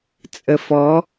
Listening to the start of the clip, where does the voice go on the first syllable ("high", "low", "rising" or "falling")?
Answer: low